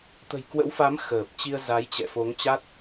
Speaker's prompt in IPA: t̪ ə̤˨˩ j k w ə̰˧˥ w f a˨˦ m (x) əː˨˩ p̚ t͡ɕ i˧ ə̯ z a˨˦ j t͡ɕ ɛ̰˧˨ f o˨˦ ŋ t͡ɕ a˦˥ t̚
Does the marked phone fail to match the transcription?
no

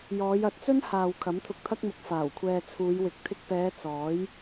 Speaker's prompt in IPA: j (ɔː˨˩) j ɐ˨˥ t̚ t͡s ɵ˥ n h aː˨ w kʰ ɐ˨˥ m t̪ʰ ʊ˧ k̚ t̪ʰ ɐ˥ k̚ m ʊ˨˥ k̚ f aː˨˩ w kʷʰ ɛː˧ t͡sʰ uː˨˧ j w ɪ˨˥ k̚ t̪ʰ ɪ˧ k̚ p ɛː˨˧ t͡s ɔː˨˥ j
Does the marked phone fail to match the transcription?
yes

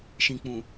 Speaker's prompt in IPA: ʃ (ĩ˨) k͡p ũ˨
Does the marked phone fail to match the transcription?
no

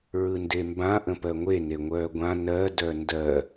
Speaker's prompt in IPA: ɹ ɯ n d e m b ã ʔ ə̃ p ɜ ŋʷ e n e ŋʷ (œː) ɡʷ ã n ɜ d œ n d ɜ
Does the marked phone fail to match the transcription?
no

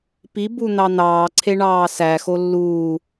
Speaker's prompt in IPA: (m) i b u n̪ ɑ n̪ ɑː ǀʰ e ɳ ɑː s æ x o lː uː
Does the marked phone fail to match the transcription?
yes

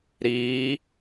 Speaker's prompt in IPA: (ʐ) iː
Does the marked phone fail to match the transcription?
yes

